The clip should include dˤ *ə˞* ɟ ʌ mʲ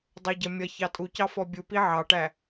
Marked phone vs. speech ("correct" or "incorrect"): correct